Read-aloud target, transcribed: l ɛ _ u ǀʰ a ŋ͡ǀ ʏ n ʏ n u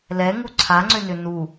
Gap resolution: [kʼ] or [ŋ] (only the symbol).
ŋ